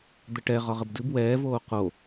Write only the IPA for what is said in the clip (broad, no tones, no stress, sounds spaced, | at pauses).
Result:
d̪ ə ʈ ɛ ʁ ɒ ʁ ə b d ɨ b w ɛː v oː q o